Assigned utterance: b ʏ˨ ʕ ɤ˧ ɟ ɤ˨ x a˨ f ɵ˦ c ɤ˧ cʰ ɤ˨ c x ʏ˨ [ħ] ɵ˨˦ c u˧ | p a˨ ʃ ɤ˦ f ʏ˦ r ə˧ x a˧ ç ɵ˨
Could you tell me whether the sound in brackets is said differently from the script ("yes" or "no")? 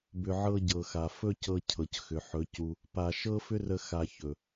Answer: no